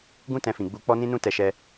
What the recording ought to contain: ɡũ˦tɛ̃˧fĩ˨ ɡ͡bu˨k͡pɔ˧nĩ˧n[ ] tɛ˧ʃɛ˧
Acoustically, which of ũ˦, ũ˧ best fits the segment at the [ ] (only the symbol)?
ũ˧